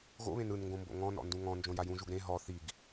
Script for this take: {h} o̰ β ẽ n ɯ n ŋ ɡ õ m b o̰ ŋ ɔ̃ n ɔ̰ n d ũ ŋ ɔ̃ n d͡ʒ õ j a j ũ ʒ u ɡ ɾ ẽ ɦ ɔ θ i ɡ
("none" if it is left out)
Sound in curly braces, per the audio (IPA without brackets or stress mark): ɣ